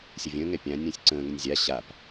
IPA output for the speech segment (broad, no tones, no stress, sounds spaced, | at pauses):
sʲ ə vʲ ə̃ː ŋ ɛ pʲ ã nʲ ə̃ː sʲ ǀ ə̃ː ŋ ə nʲ zʲ a ɕ a p